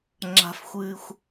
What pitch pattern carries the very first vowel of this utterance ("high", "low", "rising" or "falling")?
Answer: high